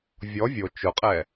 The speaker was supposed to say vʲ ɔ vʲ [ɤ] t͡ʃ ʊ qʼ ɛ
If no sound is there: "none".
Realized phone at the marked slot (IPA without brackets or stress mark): o